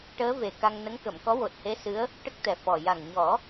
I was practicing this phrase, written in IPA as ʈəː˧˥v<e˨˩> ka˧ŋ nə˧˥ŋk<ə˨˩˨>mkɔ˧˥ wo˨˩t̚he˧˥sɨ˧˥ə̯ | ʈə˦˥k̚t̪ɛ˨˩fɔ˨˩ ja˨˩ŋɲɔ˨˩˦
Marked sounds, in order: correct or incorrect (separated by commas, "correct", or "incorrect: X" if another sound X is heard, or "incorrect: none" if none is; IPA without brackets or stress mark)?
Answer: correct, correct